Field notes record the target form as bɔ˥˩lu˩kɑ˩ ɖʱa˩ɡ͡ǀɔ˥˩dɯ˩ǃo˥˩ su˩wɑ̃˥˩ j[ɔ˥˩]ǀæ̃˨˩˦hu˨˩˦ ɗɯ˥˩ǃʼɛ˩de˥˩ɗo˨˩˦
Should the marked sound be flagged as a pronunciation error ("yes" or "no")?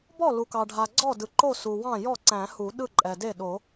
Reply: no